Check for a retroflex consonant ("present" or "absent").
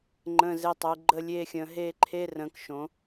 absent